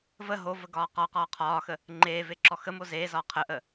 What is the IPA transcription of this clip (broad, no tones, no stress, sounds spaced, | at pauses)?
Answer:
v ə ɦ o v ə ɡ ɒː q ɒ q ɒː qʰ ɒː x ə | ŋ͡ǃ eː v e ǁ ɔ x ə m o z eː z ɒː qʰ ə ʔ ə